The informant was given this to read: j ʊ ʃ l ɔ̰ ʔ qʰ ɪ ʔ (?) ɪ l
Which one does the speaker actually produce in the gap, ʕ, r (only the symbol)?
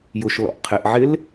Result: ʕ